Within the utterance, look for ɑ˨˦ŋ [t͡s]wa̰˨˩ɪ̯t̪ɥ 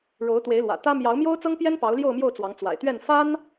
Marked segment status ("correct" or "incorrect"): correct